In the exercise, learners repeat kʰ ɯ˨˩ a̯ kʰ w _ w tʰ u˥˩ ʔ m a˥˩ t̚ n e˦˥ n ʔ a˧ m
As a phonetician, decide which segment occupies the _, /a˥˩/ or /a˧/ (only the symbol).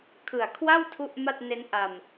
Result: a˥˩